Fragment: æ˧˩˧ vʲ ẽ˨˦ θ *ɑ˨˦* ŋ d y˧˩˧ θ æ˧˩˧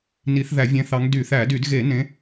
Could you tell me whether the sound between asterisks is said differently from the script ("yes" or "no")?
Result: no